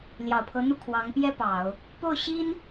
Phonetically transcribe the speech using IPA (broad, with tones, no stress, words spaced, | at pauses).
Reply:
ljɑ˨˩ʊ̯pʰɤ˧˥n̪u˥˩ kʰwɑ˧˥ŋpjɛ˥ pɑ˨˩˦ʊ̯ | po˥˩ʊ̯ɕi˥n